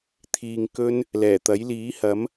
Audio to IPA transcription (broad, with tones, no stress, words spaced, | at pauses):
t̪ʰiː˧ŋkɵ˥n | lɛː˨˩t̪ɐ˨˥jliː˨˥hɐ˨˥m